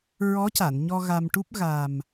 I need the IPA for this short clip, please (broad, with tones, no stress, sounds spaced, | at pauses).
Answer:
ɹ ɔ˧˥ c a˨˩˨ n ɲ ɔ˧ ɣ a˧ m ʈ u˦˥ p̚ ɣ a˨˩ m